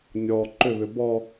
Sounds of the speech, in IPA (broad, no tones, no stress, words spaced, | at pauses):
nʲɔ ǃʏβʏ bɔ